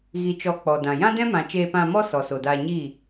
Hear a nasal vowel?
yes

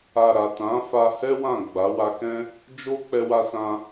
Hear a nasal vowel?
yes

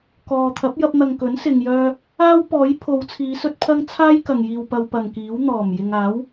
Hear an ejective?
no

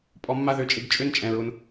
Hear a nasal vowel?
yes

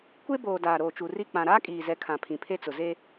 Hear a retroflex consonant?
no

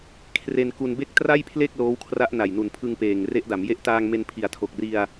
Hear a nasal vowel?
no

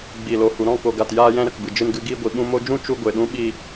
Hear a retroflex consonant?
no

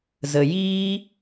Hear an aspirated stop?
no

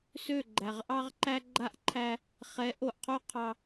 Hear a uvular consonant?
yes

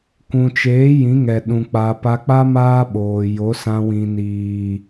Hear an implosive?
yes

